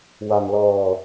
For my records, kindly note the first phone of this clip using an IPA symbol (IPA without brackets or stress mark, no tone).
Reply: w